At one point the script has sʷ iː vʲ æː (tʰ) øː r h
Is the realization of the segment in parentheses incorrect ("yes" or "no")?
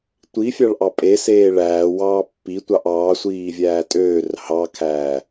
yes